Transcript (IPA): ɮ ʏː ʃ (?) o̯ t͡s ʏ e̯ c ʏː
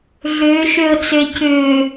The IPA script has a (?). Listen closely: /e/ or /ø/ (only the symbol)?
ø